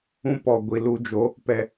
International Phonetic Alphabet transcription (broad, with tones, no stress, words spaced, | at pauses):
ũ˦pɔ˨ ɡʷi˨lu˧d͡ʒo˨˦ | pɛ˨